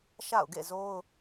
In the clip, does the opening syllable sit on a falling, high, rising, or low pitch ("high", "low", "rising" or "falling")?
falling